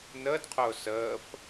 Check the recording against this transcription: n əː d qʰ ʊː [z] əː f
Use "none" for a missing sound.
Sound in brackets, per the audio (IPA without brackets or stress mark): s